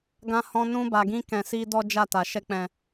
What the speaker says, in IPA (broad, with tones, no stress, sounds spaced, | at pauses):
ɡ ã˧ h ɔ̃˧ n ũ˧ b a˨ ɡ ĩ˧ k ɛ̃˨ s i˧ d ɔ˦ d͡ʒ a˦˨ t a˨ ʃ ɛ˧ k͡p ɛ̃˨